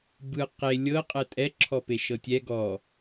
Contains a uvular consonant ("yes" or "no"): yes